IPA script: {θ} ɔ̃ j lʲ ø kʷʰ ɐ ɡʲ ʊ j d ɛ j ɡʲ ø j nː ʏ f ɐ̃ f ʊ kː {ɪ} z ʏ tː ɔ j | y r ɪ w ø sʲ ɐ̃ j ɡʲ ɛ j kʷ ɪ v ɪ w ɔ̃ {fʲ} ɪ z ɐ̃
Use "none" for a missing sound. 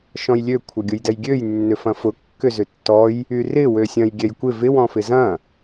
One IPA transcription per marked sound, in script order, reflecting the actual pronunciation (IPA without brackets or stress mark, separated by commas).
ʃ, ʏ, f